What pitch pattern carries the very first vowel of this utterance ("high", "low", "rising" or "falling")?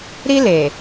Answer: high